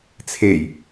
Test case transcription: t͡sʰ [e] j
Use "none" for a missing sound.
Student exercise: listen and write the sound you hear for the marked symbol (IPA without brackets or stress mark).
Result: e